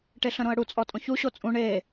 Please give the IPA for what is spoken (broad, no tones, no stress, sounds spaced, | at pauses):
ʈ e ɬ ə̃ ɾ õ ə̯ ɽ u t͡sʼ ɔ tʼ õ ç u ɕ o t͡sʼ ũ ɳ e